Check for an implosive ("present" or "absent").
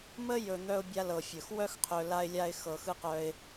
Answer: absent